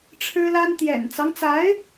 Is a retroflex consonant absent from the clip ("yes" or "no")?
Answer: no